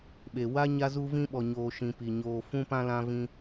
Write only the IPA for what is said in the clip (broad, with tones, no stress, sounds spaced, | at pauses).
ɓ e˨ w a˧ ɲ a˧ z u˧ v ĩ˧ ɓ ɔ˨ ɲ oː˨ ʃ ĩ˨ p i˨ ɲ oː˨ f ũ˧ p ã˧ l ã˧ v ĩ˧